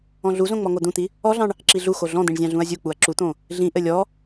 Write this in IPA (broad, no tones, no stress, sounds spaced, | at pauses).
ɔ̃ ɮ u z õ ŋ͡m ɔ ŋ o d̪ ũ t̪ i | ɔ ɮ ɑ̃ ɳ | ǁ i ɮ u x o ɮ ɔ̃ d̪ ĩ ɳ zʲ ɑ̃ ɮ ũ ɐ̯ zʲ u k͡p u ɐ̯ ǁ u t̪ õ | ɮ ĩ ʔ ɘ lʲ ɔ